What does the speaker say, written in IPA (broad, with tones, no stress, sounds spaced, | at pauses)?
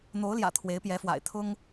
n̪ o˧˥ ʊ̯ l j ä̰˨˩ t̪ʰ w e˧˥ ɪ̯ p j ɛ˧˥ f w a̰˨˩ ɪ̯ t̪ʰ ʊ˥ ŋ